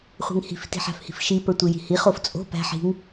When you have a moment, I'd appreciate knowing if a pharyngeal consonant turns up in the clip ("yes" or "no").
yes